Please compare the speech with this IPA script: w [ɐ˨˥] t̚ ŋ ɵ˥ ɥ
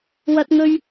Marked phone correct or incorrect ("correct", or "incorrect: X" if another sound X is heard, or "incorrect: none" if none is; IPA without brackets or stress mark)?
incorrect: ɐ˥